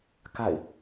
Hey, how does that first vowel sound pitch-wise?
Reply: falling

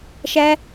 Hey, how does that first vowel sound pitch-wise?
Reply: high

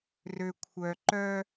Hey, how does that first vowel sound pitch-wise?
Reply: low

